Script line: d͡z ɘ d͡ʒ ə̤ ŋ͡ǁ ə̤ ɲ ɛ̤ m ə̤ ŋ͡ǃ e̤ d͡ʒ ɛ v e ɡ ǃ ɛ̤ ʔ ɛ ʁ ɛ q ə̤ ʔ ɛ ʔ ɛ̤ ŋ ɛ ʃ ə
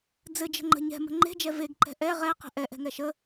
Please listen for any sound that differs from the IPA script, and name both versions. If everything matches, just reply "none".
ŋ͡ǁ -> ŋ͡ǃ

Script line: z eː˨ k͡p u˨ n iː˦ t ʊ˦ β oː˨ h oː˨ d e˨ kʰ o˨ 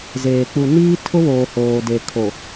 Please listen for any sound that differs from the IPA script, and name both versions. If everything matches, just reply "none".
t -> tʰ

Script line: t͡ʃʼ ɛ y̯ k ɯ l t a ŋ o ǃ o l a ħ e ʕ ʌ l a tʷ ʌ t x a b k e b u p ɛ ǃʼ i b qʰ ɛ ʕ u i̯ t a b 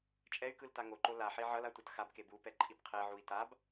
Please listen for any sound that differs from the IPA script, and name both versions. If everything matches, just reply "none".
none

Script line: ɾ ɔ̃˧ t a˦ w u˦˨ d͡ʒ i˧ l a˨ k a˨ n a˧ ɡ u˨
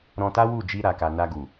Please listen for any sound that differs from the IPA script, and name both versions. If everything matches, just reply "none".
l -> ɾ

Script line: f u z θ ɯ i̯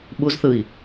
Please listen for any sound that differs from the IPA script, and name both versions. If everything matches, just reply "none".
f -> ɓ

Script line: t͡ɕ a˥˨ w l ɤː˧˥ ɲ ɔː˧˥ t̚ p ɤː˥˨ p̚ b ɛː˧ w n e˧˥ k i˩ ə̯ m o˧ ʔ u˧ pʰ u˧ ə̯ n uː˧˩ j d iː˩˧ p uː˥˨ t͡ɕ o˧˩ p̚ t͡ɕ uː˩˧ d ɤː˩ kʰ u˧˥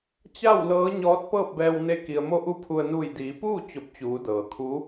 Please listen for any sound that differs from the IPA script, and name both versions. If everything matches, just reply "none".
none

